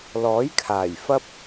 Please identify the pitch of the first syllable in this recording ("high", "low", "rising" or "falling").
rising